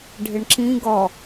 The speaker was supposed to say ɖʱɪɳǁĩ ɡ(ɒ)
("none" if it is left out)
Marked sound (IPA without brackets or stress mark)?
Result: ɒ